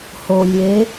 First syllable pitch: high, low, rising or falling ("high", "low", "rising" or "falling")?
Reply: low